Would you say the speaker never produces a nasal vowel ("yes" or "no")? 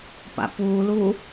yes